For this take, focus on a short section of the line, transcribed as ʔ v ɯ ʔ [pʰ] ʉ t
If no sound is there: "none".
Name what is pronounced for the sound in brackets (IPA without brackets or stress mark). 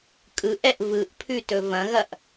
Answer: pʰ